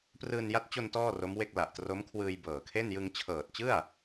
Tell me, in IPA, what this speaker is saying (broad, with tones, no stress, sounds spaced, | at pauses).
p r ɯː˧ n j a˦˥ t̚ t͡ɕ o˧ n t ɔː˥˩ r o˦˥ m w e˥˩ k̚ l a˨˩ ʔ t r o˦˥ m kʰ w ɯː˧ j b ɤː˨˩ kʰ e˥˩ n j ɯ˧ ŋ t͡ɕʰ ɤː˨˩ t̚ t͡ɕ ɯ˥˩ a̯